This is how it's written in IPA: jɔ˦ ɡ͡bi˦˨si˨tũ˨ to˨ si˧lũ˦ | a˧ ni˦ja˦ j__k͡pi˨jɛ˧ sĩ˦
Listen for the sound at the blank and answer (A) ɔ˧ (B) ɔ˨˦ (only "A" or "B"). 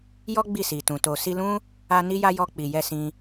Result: A